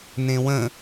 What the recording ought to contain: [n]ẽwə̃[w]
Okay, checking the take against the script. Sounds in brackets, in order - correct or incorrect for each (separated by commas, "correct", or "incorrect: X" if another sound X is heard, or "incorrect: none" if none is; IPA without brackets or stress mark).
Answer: correct, incorrect: none